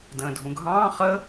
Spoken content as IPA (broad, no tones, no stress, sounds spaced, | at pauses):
d ə̃ː dʱ ũ ɡʱ ɑ̃ː χ ə